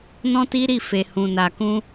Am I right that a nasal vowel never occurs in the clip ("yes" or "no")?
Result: no